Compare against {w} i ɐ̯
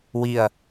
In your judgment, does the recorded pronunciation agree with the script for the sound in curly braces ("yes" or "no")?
yes